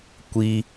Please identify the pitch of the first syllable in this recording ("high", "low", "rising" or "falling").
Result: high